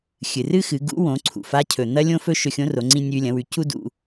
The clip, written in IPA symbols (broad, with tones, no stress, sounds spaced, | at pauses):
xʲ ɨ˩ r ɨ˥ x ɨ˩˧ ɡ ṵ˧˥ w õ˩˧ ǀʰ ṵ˩ f a˧˥ cʰ ɵ˩ n̪ ɐ˥ lʲ õ˥ f ɵ˥ ʃ ɵ˧ xʲ õ˧˥ r o˩˧ ŋ͡ǀ ĩ˧ nʲ ʉ˧ lʲ ɐ̃˩˧ w ʉ˩˧ c u˥ d ṵ˧